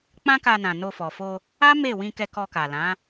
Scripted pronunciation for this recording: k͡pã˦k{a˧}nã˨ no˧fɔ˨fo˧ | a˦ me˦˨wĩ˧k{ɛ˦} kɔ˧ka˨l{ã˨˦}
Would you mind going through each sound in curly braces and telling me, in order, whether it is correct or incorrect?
correct, incorrect: ɛ˧, correct

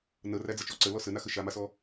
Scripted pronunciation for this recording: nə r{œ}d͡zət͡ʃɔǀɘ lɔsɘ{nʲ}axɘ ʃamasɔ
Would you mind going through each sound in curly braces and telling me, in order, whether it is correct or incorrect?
incorrect: æ, incorrect: n

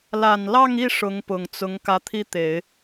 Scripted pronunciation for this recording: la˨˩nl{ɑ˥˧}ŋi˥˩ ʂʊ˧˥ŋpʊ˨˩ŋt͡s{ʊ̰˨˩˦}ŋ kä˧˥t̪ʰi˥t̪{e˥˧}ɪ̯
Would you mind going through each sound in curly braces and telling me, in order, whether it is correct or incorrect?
correct, incorrect: ʊ˧˥, incorrect: e˨˩˦

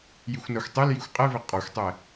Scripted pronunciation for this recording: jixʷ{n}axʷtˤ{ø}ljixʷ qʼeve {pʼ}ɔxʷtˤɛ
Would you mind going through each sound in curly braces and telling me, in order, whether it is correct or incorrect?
correct, incorrect: e, incorrect: qʼ

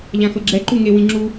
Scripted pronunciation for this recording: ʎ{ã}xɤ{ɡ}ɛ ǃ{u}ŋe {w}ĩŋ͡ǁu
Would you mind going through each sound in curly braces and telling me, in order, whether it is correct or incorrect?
correct, incorrect: ɡ͡ǁ, correct, correct

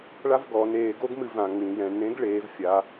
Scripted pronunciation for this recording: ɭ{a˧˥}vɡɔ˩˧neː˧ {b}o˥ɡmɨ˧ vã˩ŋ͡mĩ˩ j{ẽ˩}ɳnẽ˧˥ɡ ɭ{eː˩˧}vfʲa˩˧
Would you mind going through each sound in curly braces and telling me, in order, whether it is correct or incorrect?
incorrect: a˥, incorrect: ɡ, incorrect: ɛ̃˩, correct

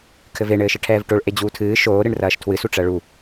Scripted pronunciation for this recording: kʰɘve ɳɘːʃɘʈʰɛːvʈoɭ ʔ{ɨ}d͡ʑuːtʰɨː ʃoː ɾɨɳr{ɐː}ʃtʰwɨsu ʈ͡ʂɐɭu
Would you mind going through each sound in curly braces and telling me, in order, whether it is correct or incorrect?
incorrect: e, correct

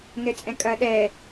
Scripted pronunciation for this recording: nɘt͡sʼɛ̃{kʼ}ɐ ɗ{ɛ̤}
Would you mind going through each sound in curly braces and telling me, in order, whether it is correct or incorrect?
correct, incorrect: ɛ

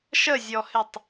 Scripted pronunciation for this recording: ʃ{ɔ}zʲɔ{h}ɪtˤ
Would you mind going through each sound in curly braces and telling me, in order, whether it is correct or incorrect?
incorrect: ə, correct

